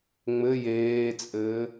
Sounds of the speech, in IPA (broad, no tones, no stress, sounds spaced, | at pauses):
ŋ͡m ɘ j eː t͡sʼ ɘː